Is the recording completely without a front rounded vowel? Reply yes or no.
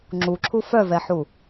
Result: no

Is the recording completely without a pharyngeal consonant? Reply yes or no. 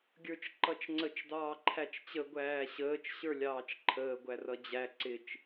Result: yes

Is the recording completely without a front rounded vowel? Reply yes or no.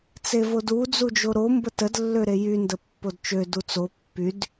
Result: no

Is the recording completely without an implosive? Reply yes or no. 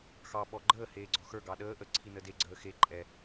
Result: no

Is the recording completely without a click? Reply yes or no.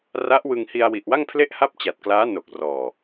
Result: yes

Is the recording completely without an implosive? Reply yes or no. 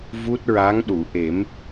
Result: no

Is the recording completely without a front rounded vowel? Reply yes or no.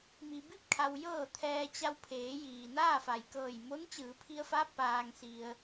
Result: yes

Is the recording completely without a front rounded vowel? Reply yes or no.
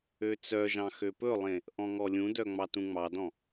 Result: no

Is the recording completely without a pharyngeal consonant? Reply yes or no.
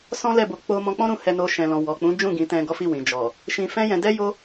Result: yes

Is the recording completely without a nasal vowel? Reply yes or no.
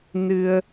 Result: yes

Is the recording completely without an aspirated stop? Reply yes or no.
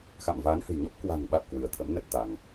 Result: no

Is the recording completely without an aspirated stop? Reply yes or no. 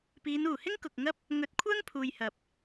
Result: no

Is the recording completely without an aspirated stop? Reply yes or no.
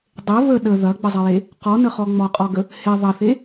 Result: yes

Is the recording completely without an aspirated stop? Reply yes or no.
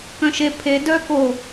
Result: no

